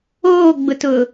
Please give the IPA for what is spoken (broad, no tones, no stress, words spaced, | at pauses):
oːɡ͡bʊtʊ